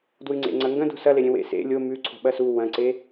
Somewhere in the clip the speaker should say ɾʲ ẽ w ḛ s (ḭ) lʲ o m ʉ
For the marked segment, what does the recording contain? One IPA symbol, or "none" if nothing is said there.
ḛ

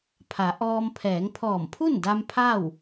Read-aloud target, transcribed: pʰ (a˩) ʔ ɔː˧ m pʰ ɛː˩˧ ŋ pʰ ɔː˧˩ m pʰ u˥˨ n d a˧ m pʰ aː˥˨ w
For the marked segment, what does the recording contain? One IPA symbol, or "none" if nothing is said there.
a˩˧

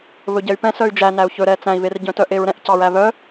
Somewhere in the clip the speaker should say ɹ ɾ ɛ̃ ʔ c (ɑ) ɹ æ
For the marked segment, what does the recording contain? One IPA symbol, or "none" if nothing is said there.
ɑ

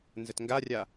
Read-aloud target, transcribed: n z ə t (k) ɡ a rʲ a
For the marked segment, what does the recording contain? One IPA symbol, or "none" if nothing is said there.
ŋ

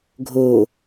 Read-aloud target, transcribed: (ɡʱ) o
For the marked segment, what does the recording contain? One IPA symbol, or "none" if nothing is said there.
ɡʱ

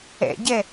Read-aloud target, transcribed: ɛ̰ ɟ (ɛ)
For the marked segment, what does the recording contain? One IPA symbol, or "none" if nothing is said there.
ɛ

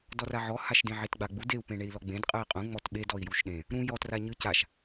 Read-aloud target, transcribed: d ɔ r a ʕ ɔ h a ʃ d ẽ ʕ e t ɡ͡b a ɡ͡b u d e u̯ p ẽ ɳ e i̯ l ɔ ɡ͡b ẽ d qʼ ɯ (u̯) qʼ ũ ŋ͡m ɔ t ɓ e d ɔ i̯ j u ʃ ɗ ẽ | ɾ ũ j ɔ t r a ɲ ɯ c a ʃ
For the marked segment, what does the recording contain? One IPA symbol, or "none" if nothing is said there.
i̯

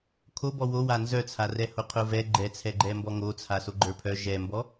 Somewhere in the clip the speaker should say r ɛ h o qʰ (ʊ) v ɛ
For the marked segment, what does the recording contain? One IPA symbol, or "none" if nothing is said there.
ʊ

